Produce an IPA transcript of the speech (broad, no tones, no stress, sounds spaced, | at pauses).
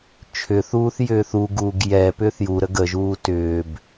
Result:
t͡ʃʰ ʏ θ uː θ j ʏː θ u ɡ uː ɡ j ɛ p ʏː θ j u ɾ ə ɡ ə ʒ uː t ʏː b